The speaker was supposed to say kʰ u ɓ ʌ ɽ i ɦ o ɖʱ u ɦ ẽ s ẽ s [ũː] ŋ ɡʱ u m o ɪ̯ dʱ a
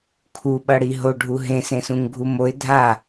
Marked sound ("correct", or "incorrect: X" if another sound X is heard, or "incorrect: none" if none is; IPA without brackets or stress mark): incorrect: ũ